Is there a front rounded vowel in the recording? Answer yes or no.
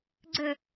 no